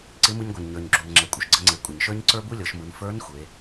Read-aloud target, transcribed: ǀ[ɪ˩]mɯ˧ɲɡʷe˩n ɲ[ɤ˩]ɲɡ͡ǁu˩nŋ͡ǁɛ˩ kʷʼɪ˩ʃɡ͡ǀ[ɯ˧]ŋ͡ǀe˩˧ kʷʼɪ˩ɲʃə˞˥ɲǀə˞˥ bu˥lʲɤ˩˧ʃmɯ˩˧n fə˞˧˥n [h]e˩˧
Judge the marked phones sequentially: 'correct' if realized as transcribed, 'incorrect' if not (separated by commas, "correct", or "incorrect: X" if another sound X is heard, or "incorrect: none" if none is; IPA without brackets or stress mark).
incorrect: ɪ˧˥, incorrect: ə˞˩, incorrect: ə˧, incorrect: xʷ